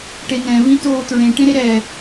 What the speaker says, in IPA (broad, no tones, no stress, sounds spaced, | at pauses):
ʈ e n ɛ̃ v ĩ t oː t ɹ ẽ ʈ ẽ ɾ e ɾ ɛ